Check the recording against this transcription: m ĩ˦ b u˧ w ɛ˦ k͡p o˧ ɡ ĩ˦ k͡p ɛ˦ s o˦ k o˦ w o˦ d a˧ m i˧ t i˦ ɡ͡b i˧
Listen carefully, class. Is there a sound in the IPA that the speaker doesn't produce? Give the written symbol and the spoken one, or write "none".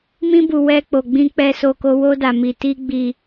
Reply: ɡ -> ɡ͡b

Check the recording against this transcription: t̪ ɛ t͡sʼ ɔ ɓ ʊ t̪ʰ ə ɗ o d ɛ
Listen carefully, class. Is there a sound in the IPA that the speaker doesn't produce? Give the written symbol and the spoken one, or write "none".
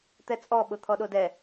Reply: ə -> ɔ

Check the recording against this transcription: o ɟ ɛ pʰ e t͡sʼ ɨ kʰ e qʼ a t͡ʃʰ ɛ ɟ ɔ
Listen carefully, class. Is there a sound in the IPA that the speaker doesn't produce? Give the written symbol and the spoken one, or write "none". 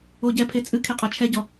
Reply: none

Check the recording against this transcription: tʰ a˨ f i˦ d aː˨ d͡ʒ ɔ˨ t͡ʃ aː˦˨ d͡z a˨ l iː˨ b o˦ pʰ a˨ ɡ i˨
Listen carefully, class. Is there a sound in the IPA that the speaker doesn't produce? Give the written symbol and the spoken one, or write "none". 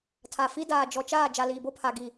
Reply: d͡z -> d͡ʒ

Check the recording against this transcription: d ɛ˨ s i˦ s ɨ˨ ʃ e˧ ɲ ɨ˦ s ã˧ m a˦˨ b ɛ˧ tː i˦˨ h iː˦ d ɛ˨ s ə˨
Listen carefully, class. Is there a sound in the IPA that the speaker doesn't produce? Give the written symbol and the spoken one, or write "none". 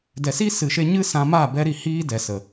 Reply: tː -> ɾ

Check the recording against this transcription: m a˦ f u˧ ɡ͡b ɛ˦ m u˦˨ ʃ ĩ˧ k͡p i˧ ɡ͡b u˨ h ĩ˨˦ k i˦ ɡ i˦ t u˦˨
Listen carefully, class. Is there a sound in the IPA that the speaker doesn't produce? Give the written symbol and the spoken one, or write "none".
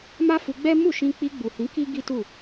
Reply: none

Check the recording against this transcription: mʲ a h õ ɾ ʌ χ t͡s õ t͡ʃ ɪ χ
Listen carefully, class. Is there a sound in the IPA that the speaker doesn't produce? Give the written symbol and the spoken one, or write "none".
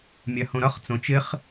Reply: none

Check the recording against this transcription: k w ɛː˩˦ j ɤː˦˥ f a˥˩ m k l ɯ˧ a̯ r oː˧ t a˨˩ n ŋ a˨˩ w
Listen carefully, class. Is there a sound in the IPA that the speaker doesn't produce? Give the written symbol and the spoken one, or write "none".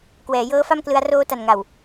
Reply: none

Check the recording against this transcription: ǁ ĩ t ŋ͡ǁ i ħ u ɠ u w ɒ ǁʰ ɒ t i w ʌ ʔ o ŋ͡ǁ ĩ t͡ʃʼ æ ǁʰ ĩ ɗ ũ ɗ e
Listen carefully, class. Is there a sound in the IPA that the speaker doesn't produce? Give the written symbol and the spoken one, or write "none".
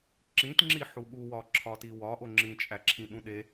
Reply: ʌ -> ɒ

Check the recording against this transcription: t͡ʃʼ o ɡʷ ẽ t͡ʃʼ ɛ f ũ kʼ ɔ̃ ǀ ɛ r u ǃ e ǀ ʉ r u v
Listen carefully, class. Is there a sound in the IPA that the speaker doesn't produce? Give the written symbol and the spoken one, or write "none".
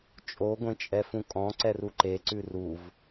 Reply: none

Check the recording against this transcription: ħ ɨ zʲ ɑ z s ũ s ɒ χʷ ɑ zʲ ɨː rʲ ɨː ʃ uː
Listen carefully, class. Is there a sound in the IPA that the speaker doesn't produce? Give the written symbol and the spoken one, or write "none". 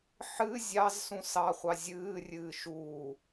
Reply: ɒ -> ɑ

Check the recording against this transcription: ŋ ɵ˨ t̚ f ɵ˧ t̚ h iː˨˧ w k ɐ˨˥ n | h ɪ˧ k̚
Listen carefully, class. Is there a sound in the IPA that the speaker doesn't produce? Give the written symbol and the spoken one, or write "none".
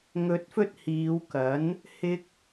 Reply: none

